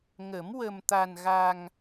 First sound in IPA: ŋ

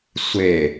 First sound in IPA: sʷ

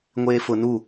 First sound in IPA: ŋʷ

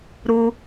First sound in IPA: ɾ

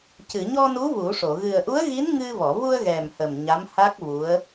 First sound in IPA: c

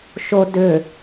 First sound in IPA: ʃ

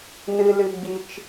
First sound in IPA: n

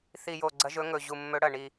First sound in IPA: θ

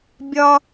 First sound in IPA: bʲ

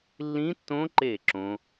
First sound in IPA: lː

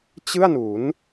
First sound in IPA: t͡ɕ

